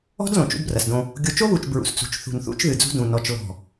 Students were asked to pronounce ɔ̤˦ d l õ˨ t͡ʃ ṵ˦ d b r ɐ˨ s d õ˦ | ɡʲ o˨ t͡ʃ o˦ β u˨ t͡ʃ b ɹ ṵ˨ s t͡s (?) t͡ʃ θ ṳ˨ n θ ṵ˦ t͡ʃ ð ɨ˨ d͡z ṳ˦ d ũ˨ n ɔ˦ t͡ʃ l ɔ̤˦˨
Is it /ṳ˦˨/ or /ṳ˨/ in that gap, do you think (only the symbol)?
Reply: ṳ˨